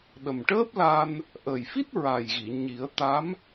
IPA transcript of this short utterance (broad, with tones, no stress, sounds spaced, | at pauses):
ɗ ə˨˩ m ʈ əː˦˥ p̚ l a˧ n | ʔ əː˨˩ j f i˦˥ t̚ ɹ a˨˩ j ɣ i˨˩˨ ɲ i˨˩˦ ə̯ t̪ a˧˥ m